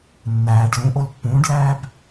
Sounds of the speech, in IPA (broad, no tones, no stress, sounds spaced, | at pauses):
nː æː ɖ l ũ ʔ o l pː ũː ɖ l æː b